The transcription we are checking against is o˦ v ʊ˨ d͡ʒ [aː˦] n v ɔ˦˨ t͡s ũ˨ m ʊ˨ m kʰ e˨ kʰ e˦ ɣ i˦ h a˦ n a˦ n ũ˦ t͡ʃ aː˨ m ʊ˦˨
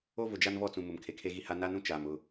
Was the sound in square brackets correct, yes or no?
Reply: no